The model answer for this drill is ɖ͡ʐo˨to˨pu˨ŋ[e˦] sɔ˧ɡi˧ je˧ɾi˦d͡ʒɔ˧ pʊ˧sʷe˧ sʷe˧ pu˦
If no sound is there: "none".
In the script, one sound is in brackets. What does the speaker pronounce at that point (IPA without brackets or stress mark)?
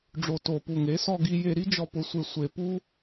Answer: e˨˦